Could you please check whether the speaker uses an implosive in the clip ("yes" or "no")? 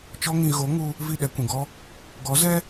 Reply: yes